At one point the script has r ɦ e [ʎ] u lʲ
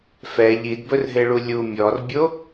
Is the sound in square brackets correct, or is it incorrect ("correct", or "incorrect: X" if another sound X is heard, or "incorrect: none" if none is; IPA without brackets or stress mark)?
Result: incorrect: ɭ